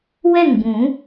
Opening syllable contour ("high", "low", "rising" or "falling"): falling